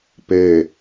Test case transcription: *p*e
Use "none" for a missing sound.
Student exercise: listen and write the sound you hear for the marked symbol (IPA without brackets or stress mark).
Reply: p